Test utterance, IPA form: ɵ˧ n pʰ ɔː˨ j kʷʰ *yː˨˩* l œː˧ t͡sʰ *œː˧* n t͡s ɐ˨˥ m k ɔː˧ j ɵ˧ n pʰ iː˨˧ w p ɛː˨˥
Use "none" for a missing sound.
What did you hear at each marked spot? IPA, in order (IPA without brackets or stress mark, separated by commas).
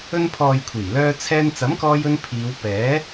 iː˨˩, ɛː˧